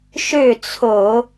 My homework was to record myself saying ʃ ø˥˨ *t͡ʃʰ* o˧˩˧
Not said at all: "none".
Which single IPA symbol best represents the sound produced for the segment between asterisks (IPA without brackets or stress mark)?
t͡sʰ